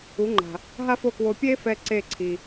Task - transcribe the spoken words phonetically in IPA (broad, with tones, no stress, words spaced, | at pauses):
u˩˥ŋ͡ǃa̤˩ | ɦa˥fo˥˩kwo˧ pʲe˥fɛ˧ ǀe˥˩ ǀʰi˩